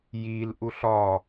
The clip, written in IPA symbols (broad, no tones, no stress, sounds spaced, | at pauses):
j i l ʔ u ɬ ɒ